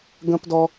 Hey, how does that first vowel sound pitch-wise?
high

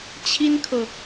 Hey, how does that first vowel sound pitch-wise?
high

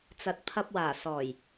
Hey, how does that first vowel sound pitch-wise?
low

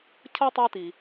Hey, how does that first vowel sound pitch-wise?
high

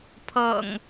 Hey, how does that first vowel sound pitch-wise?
low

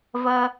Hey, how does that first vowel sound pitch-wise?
low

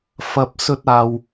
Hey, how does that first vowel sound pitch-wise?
low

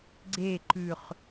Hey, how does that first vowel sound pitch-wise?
falling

